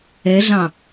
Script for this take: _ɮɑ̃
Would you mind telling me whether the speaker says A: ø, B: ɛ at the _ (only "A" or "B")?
B